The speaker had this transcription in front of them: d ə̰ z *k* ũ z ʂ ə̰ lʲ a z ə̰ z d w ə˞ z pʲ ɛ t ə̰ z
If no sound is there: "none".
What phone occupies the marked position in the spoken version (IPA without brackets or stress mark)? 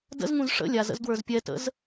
ŋ